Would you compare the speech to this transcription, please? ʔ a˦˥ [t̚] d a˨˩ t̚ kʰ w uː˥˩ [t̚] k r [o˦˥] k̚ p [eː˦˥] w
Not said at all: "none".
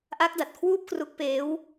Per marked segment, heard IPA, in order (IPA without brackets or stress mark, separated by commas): k̚, p̚, u˦˥, eː˦˥